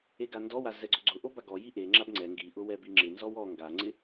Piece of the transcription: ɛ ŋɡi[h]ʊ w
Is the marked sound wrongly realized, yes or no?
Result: yes